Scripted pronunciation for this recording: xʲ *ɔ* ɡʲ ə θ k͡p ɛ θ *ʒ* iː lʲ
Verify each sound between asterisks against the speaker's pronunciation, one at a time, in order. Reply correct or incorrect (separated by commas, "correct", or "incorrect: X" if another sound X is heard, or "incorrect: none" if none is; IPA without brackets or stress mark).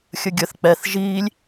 incorrect: ə, correct